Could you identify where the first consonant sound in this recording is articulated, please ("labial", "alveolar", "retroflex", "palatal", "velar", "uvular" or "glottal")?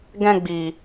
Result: velar